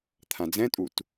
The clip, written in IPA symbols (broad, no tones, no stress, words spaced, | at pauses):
t̪ʰãd͡zɛ̃tʼut